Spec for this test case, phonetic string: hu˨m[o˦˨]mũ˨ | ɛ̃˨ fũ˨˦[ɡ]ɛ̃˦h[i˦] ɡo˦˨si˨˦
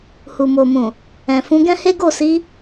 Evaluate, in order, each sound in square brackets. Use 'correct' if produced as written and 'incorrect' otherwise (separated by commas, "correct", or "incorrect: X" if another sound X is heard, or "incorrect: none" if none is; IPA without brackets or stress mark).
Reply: incorrect: o˨, correct, incorrect: e˦